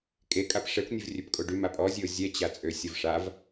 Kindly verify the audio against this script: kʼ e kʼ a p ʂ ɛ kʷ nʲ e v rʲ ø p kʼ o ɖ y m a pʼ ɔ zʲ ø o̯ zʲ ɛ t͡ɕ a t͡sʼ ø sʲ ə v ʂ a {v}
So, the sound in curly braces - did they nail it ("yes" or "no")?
yes